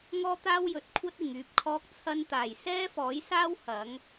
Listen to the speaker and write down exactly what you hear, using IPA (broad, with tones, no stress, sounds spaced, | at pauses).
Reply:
ŋ ɔː˥ t̪ aː˥ w j ɵ˨ t̚ kʷʰ ɐ˥ t̚ ɪ˨˩ ŋ yː˨ p̚ kʰ ɔː˧ k̚ t͡sʰ ɐ˧ n t̪ aː˨˩ j s ɛː˥ f ɔː˨˥ j s aː˥ w h ɐ˨˥ ŋ